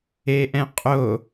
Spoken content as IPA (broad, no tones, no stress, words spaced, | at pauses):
eʔɛ̃qʼo